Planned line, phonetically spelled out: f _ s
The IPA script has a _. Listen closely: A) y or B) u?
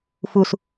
B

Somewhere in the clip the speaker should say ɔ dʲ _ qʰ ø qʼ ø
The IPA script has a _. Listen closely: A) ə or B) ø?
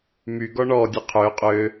A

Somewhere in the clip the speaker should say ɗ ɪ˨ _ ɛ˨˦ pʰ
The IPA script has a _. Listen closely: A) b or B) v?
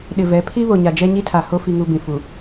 B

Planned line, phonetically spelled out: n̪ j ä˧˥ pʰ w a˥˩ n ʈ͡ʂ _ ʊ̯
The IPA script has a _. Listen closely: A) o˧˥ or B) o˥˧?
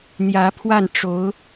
A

